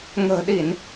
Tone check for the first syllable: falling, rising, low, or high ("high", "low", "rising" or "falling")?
low